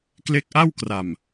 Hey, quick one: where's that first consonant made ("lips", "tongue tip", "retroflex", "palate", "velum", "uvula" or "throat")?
velum